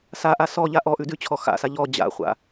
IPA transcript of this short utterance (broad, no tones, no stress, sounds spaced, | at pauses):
s a ʔ a s ɔ ʎ a ʔ ɔ ʔ ʉ d ʉ t͡ɕʰ ɔ x a̰ s a ʎ ɔ d͡ʑ a̰ χʷ a̰